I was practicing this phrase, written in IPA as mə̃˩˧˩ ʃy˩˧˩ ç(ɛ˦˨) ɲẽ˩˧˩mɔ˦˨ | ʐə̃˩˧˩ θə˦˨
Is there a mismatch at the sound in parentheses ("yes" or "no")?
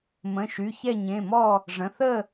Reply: no